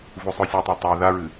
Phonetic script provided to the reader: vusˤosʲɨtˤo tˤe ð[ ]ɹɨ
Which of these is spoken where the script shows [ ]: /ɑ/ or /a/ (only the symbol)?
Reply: a